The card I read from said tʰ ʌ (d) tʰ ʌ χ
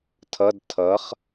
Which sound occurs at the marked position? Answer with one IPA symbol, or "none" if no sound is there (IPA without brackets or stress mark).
d